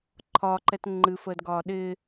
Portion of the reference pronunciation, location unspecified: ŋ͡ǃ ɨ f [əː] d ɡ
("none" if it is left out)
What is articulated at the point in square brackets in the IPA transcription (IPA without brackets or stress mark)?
əː